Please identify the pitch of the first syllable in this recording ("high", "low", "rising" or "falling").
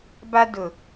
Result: high